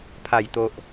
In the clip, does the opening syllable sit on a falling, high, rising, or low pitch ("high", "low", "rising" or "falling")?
low